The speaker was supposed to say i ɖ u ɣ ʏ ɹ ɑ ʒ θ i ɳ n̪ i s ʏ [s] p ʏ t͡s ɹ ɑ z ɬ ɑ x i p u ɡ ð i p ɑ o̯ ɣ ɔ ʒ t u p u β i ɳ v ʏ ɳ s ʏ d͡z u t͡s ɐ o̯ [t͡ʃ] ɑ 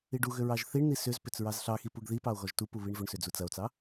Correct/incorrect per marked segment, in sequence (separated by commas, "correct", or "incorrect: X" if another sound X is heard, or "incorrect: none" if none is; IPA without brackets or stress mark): incorrect: z, incorrect: t͡s